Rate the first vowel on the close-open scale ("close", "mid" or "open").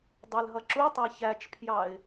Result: open